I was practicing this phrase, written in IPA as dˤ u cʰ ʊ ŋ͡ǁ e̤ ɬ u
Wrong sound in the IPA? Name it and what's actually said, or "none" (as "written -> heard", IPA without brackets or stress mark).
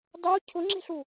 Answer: none